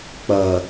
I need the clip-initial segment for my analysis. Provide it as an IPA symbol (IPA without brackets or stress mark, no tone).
k͡p